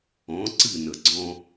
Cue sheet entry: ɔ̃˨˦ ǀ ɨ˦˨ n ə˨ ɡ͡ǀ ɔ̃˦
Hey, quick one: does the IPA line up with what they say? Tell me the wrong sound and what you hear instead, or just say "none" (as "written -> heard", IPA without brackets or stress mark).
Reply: none